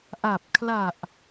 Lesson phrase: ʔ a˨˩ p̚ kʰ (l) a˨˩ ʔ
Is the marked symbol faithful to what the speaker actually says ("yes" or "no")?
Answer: yes